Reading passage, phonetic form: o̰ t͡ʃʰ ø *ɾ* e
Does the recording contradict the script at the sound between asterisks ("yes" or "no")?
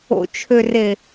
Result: yes